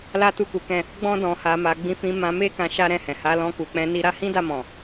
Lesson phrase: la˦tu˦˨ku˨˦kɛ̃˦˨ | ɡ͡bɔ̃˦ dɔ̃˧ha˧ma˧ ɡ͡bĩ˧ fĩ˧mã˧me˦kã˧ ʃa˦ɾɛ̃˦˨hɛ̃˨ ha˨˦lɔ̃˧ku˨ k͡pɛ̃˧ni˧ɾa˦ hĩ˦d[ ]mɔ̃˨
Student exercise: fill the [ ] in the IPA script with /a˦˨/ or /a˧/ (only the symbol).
a˦˨